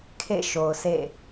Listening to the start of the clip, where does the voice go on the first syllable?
falling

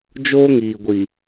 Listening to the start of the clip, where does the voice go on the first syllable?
high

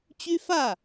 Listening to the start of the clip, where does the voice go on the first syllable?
high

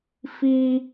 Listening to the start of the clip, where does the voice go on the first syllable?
high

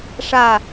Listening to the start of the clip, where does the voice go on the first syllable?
falling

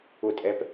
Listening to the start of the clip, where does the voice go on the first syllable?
falling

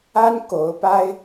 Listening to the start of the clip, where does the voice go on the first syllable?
high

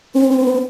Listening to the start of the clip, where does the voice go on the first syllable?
low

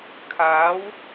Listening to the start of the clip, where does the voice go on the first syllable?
rising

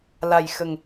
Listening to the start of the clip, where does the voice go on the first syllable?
low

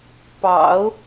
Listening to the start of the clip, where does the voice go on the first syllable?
low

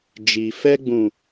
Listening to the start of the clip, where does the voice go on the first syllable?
low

